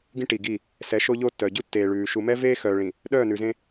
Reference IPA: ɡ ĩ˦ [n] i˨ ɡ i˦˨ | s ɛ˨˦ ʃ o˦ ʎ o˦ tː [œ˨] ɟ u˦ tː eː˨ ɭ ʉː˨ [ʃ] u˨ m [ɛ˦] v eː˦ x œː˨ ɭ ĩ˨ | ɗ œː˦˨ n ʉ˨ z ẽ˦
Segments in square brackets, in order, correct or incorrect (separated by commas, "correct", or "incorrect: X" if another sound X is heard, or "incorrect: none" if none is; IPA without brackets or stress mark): incorrect: ʈ, correct, correct, correct